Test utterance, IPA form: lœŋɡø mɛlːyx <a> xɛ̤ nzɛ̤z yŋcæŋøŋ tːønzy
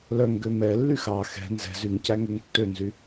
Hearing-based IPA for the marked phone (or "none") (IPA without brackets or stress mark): ɑ